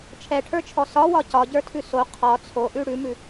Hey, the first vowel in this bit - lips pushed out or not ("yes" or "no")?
no